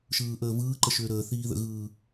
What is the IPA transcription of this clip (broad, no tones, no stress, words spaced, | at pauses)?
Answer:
ʃɯːʔəːvɯː ǃəʃʏːɾəː θiːðə̰ɣɯː